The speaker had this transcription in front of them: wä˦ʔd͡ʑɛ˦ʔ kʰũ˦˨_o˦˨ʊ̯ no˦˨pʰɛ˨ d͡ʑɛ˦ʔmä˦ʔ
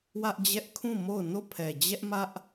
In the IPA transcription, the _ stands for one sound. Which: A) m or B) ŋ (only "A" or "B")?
A